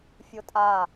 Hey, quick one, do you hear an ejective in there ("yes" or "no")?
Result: yes